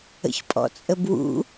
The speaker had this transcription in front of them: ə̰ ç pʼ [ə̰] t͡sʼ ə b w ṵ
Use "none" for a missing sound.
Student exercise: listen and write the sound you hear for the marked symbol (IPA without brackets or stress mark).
ɔ̰